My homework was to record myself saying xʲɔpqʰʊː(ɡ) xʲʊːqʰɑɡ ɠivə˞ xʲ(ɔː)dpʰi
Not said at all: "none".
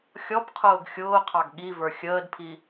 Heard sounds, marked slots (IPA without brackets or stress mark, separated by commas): ɡ, əː